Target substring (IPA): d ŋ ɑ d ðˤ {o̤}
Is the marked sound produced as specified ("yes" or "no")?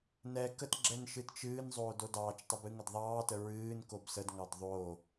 no